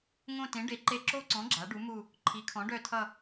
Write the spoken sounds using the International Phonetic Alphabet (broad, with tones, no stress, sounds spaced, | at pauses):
ŋ õ˦˨ t ẽ˩˥ ɖ e˩˥ ǃ e˦˨ ǁ o˦˨ ǀ ɔ̃˩˥ ɡ͡ǁ a˩˥ ɖ u˩˥ m u˦˨ | ǃʰ i˩˥ kʰ ɔ̃˩˥ ɖ œ˦˨ tʰ ʌ˦˨